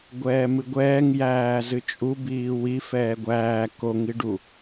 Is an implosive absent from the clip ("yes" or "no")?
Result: yes